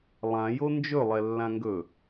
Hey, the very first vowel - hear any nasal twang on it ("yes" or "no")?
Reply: yes